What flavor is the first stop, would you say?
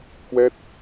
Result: plain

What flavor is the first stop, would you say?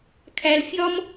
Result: aspirated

